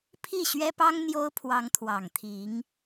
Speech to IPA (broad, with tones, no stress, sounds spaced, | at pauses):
pʰ i˥˩ ɕ ɥ ɛ˥ p ɑ˥ ŋ n̪ j o˥ ʊ̯ pʰ w ɑ˧˥ ŋ t̪ʰ w ɑ˨˩ ŋ t̪ʰ i˧˥ ŋ